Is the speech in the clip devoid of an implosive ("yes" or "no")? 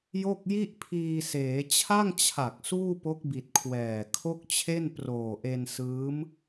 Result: yes